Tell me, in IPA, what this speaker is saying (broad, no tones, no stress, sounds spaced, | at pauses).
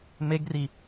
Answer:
m e ɡ r i